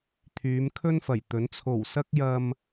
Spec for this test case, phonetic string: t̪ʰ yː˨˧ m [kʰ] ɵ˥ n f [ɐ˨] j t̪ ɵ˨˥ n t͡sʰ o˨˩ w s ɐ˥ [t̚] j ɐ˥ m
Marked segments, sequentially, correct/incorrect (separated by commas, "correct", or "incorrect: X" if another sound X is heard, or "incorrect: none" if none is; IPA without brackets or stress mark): correct, incorrect: ɐ˨˩, incorrect: k̚